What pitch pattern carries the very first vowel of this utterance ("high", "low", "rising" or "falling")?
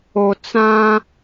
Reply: low